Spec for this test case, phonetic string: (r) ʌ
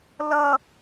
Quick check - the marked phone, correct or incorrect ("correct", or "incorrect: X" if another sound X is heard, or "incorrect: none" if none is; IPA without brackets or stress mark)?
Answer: incorrect: l